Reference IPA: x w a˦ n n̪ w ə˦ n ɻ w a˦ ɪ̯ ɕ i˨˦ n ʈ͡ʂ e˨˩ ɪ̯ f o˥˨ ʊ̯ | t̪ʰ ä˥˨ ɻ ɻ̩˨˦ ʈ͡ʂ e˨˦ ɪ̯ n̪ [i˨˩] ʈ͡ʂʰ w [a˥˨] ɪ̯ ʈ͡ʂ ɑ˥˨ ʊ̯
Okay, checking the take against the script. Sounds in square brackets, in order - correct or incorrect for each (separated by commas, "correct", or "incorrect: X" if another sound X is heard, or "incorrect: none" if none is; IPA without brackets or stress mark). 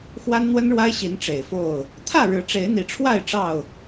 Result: correct, correct